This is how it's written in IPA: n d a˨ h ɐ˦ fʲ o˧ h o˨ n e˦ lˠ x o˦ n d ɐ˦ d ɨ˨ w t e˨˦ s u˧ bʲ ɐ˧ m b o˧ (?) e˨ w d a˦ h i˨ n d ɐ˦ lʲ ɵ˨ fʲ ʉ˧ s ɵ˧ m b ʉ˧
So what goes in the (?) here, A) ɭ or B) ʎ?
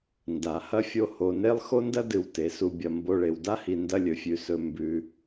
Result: A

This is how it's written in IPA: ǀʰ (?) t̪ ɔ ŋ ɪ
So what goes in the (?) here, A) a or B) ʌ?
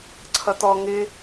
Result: B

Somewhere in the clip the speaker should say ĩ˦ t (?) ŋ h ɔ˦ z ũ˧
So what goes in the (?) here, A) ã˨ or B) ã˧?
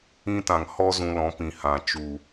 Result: A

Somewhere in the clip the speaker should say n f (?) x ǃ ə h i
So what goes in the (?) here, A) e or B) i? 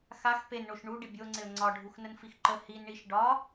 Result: B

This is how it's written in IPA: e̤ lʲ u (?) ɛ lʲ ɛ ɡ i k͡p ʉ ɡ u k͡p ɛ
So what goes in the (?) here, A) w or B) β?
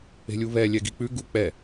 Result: B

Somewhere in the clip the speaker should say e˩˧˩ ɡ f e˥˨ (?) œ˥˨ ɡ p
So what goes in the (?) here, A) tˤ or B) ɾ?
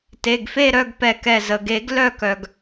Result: B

